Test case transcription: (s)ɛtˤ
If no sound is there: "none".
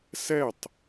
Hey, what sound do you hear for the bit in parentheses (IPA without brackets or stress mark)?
s